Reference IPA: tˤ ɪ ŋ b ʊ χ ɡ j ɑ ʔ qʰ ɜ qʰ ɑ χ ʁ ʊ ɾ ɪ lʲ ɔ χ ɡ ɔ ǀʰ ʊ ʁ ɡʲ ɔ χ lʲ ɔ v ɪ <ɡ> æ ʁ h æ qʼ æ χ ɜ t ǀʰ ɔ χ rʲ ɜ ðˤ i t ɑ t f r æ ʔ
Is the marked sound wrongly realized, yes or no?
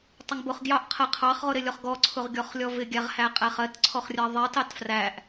yes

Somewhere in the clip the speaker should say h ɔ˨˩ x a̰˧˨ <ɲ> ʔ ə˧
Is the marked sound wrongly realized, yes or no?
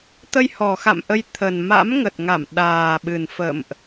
yes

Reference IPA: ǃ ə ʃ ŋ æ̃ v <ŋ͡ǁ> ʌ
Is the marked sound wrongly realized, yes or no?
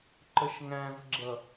yes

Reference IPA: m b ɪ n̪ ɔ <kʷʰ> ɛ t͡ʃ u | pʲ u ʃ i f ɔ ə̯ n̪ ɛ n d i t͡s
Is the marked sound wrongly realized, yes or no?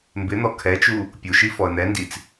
yes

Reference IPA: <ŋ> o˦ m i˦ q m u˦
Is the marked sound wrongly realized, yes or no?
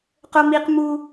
yes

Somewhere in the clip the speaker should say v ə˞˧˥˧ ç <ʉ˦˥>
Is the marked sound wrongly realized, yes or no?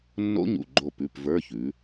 yes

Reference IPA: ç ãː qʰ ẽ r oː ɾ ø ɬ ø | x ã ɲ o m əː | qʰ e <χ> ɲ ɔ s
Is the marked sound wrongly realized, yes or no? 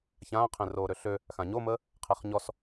no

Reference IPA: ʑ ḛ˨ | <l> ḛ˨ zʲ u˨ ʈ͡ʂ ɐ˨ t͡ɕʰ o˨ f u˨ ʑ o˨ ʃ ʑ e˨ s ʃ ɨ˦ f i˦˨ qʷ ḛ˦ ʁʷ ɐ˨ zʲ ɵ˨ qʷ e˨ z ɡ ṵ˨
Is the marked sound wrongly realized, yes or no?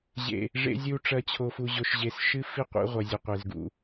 yes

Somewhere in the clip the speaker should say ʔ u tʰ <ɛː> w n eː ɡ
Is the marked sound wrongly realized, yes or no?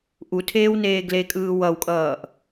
yes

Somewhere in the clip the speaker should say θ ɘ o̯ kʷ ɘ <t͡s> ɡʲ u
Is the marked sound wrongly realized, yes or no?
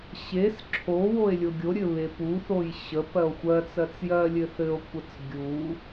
no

